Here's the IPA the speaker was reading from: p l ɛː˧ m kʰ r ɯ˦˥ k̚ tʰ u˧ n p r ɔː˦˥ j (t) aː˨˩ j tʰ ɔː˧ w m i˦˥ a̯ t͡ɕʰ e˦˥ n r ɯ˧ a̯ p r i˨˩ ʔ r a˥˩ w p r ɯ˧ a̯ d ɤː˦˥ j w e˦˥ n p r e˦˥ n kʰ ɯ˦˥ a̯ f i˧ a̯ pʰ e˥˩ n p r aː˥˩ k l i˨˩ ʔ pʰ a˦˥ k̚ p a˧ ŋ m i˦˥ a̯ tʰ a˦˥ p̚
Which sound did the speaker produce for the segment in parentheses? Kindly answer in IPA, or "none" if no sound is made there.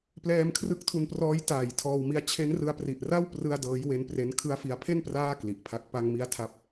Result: t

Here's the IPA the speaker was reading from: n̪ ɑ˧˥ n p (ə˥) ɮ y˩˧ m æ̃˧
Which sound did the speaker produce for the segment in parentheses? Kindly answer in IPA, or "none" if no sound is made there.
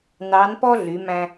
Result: ɔ˥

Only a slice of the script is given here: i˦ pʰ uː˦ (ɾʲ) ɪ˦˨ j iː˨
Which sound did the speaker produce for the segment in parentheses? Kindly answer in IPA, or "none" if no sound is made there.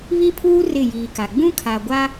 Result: r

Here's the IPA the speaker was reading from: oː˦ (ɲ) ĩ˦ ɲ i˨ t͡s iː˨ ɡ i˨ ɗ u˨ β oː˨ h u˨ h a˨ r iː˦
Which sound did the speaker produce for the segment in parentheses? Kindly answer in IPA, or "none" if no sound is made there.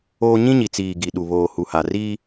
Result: ɲ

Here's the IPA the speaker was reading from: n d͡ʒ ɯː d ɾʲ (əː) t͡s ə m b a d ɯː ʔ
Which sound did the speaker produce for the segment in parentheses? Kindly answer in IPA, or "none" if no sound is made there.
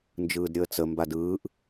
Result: əː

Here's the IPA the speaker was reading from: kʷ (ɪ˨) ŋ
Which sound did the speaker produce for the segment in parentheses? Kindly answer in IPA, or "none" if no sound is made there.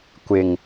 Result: ɪ˨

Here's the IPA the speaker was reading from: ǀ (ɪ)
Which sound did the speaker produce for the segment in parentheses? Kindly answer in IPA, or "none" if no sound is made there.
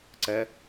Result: ɛ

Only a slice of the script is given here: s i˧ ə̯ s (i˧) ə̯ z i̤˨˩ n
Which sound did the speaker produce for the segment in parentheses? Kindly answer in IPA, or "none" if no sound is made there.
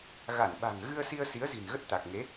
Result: i˨˦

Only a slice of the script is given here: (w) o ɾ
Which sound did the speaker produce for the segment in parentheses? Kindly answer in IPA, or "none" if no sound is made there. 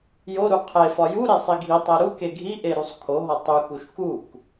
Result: j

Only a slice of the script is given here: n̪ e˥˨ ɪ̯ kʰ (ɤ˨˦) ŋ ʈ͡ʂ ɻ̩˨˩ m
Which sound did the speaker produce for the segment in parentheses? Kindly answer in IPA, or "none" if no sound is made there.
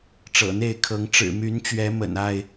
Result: ɤ˨˦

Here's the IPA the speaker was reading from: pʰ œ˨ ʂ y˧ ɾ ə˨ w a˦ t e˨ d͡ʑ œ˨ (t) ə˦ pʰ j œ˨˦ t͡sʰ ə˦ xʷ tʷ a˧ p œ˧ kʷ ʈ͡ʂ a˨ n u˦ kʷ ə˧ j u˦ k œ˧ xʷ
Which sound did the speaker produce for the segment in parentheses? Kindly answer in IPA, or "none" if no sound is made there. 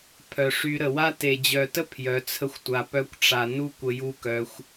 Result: t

